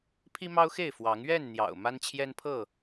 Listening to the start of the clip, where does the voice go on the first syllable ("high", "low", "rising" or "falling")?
high